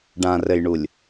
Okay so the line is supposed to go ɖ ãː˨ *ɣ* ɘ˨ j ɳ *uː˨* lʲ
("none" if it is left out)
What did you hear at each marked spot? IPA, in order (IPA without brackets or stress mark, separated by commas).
r, u˨